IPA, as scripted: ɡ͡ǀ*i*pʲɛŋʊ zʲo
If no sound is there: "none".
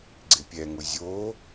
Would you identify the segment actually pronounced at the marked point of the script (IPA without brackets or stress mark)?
ɪ